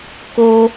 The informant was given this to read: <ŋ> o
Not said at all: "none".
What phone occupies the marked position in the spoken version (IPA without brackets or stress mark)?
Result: k